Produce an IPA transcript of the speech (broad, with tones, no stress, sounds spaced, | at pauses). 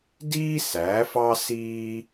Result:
d iː˦ s æ˨˦ f ɑ˦ s iː˦